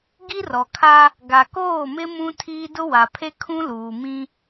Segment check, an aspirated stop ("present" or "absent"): present